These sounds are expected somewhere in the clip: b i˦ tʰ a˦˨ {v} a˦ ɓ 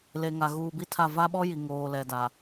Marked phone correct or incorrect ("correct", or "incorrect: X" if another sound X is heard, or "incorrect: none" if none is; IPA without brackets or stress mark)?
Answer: correct